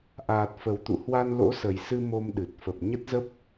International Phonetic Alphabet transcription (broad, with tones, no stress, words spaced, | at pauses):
ʔaː˨˩t̚fə˨˩wt̪ṵ˧˨ hwa˧nlo̰˧˥sə˨˩jsɨ˧ mo˧mɗɨ˨˩t̚ fə˨˩p̚ ɲə˦˥t̚zə˦˥p̚